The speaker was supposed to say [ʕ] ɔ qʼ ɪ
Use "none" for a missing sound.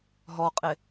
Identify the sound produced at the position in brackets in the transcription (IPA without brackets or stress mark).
ɦ